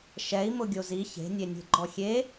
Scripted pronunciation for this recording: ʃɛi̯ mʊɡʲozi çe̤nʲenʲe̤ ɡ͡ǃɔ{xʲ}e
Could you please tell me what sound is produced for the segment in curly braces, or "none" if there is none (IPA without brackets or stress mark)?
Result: xʲ